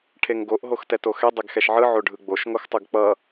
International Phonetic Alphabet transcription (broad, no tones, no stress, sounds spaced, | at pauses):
ʈʰ e ŋ ɡ o ʔ ɦ o x t ɛ t o x ɛ dˤ ɛ ɡ x ɛ ʃ ʕ ɯ ʕ o ɖʱ ɯ ɡ͡b o ʃ ŋ o x tˤ ɯ ɡ k͡p ʌ